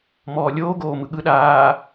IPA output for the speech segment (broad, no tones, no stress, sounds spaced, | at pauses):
m ɔː lʲ oː ɡ oː m ɯ ɠ ɯ ɗ aː